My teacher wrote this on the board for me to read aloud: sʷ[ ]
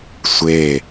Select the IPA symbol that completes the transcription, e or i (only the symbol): e